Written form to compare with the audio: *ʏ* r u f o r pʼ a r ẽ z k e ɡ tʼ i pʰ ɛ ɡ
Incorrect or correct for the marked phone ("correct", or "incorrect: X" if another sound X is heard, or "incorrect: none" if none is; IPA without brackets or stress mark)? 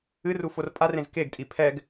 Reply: incorrect: ɨ